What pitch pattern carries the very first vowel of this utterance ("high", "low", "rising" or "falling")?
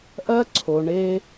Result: high